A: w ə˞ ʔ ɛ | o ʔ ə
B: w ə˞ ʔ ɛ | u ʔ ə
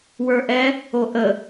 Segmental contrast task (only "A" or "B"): A